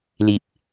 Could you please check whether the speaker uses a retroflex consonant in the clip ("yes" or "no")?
no